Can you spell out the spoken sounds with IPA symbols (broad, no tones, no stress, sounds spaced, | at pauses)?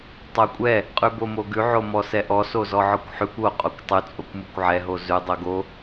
tˤ o kʷʼ ɛ | qʼ ʉ b o m o ɡ ʉ ʕ o m ɔ s ɛ ʔ ɔ s o z ɔ ʕ ɔ kʷ ħ ʉ kʷ o qʼ o kʷ tˤ ʉ t͡sʼ o kʷ m o kʷ ʕ ɛ ɦ o z ʉ dˤ o ɡ o